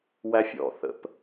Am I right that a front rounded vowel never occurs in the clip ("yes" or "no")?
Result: yes